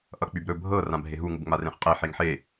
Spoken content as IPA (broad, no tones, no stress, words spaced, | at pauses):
ʔʌk͡pybɾɵ bʱɤ rãbʱeɦu ŋubŋ͡marẽχqʼe ħeŋħe